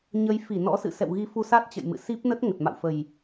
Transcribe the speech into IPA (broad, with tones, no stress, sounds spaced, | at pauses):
ɲ ə˨˦ j f i˧˩ n ɔ̰˧˥ s ɨ̰˧˨ s ɛ̰˧˨ w ɣ i˨˦ f u˧ s a˦˥ t̚ t͡ɕ ə̰˧˨ j m ɨ̰˧˨ s i˦˥ p̚ n ə˦˥ t̚ ŋ ə˨˩ t̚ m a̰˧˨ w f ə˨˩ j